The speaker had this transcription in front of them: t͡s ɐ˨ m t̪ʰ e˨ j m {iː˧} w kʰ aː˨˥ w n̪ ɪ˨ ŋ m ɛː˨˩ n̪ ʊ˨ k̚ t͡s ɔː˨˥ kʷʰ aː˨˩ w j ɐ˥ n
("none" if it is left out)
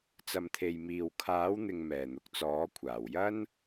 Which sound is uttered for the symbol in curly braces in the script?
iː˨˩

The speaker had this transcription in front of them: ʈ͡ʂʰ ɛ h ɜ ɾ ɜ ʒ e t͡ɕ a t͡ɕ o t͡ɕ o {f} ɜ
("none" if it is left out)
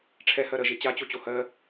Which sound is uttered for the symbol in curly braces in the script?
h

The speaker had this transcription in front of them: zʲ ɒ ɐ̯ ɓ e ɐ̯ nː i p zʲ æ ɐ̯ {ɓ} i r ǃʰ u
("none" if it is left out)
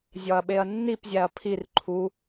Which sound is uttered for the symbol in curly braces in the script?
pʰ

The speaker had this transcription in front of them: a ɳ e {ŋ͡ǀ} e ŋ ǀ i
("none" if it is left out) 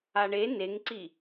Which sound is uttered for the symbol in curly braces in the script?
n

